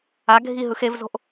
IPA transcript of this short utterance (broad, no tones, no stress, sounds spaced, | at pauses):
a ɡʱ i ɦ ɯ x e v z o̤ ʔ